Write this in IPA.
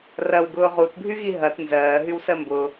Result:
r ɐ w ɡ ʊː ʁ u t bʱ y ɣ i ɦ ɐ t n z ɜː ɦ y w s ɜ m b ʊ

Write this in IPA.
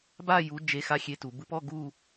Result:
b a˥˧ j u˧˥ d͡ʒ e˧˥ x a˧˥˧ xʲ e˧˥ t u˩˧ b ɯ˧˥ p ɔ˧˥˧ ɡ u˥˧

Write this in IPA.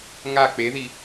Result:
ŋ a k͡p e ð i

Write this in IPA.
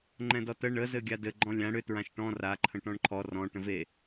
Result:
ŋ͡ǃ ɛ̃ d ɔ t ə ɳ ə z ɘ ɡʲ a d ɘ ɡ͡ǃ ɔ̃ lʲ ã ɽ ʏ t ɹ ã ʃ ʈ ɔ̃ r a ǃʰ ə̃ ʈ ɔ̃ ɳ ǃʰ ɔ r ɔ̃ ʈ ə̃ v e

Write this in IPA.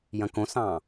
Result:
j ɐ̃ k õ s ɑ̃

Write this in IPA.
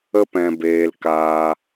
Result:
ə˧ p ɛ̃˨ b eː˨ l k aː˧

